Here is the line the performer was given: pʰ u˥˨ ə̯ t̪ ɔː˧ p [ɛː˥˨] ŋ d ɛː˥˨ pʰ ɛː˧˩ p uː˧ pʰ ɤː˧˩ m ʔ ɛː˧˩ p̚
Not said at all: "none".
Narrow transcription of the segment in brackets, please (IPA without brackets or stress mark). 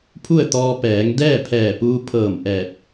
ɛː˩˧